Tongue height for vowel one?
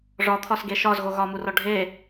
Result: low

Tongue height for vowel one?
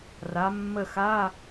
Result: low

